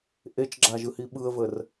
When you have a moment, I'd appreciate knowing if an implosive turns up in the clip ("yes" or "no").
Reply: yes